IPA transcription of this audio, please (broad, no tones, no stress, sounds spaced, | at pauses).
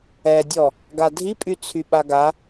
ɛ dʲ ɔ | ɡ a dʱ i pʼ y t͡sʰ y ɓ a ɡ a